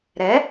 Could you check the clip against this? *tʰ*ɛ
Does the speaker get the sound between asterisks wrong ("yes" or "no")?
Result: yes